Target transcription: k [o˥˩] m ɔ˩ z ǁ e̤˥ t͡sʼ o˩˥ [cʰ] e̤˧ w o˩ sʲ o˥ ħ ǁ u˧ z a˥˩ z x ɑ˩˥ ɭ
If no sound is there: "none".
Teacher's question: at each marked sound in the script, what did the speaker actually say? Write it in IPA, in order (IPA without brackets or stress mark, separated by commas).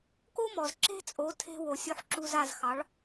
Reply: o˥, tʰ